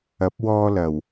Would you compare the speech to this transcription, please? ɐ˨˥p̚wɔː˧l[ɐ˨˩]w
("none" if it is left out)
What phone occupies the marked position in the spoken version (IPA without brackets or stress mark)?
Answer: ɐ˨˩